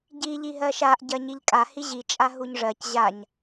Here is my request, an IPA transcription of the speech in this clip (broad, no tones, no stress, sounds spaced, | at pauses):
ɟ i ʎ i ɦ ɜ ʃ a ʔ ɟ ɜ ɲ i ʎ kʼ a h i ʑ i t͡ʃʼ a ɦ u ɲ ʐ ɜ c ʑ a ɲ